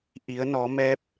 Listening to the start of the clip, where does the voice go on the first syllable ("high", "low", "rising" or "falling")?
rising